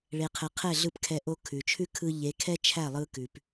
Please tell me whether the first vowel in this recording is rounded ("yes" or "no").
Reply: no